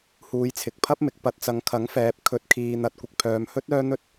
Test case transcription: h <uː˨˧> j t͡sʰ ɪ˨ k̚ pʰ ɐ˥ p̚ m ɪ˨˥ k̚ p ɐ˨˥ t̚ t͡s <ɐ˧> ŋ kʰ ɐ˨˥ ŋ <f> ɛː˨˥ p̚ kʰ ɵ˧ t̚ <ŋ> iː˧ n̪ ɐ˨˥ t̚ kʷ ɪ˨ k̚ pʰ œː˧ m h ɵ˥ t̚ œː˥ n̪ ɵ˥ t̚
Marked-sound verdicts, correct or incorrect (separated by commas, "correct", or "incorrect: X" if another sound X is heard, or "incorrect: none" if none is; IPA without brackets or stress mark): correct, incorrect: ɐ˨˧, correct, incorrect: kʰ